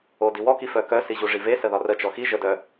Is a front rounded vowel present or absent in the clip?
present